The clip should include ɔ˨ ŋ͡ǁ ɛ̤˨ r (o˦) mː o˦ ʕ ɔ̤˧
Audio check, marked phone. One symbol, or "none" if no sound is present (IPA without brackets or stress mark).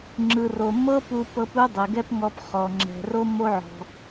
o˦